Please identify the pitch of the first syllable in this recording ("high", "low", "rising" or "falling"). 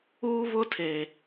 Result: high